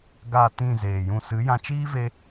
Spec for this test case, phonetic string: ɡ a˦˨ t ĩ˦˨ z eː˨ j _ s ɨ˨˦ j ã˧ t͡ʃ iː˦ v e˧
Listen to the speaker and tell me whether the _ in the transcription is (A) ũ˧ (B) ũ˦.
A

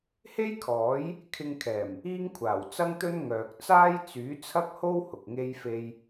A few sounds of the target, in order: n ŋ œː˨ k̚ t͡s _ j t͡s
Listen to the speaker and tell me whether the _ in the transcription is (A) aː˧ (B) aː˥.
B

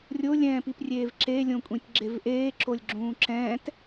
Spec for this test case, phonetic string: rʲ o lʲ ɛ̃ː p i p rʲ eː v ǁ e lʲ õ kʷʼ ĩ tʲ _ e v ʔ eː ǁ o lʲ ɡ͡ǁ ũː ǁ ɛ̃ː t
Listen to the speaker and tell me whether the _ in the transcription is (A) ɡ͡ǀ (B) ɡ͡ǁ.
B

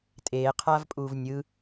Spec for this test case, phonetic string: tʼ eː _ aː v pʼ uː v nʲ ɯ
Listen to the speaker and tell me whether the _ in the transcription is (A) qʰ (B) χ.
A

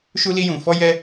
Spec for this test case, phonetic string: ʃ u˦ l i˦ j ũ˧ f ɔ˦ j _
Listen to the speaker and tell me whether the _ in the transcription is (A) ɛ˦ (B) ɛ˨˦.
A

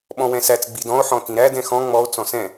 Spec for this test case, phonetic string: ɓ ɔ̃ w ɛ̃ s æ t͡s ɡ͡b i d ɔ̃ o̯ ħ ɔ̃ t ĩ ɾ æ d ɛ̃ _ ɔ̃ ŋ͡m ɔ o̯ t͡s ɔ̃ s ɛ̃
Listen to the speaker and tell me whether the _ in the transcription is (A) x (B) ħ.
A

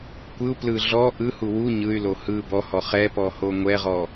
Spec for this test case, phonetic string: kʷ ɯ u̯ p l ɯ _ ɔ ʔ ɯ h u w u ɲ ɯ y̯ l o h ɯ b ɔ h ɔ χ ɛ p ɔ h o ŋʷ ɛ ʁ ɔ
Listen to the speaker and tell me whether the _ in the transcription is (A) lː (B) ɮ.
B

